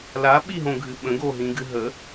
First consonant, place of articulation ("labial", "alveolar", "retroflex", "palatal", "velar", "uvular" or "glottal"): alveolar